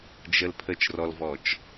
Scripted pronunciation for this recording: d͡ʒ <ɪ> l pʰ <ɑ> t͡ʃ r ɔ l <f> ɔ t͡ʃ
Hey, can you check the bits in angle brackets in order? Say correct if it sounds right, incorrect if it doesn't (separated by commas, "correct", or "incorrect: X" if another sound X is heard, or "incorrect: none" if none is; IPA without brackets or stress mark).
incorrect: ə, incorrect: ə, incorrect: v